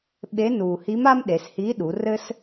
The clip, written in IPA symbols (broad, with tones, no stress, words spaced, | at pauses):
ɓe˧˥ nuː˩hi˧˥ma˥m ɗe˩˧shiː˧˥ɗu˩˧rɘ˥s